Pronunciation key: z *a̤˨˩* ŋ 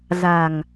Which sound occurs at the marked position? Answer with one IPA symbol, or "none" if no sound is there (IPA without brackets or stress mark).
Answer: a̤˨˩